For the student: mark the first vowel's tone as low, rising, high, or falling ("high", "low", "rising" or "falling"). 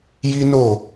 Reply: high